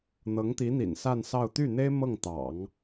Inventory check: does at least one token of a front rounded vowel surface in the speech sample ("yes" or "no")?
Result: yes